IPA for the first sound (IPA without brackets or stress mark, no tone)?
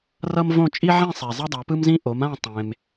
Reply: r